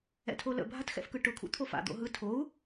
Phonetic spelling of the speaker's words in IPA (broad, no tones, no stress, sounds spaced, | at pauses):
ɛ̰ tʰ o l ə̰ bʱ a t x ɛ̰ f k ɯ ʈ ʊ kʰ ṵ t̪ʰ o f a̰ d̪ o̰ ɦ ɯ tʰ o u̯